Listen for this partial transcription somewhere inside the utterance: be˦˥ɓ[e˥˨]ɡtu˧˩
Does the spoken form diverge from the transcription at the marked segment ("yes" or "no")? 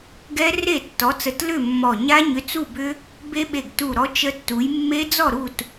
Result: yes